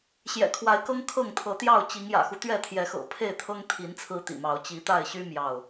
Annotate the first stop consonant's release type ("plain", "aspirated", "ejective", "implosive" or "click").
aspirated